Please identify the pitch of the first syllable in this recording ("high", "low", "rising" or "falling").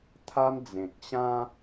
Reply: high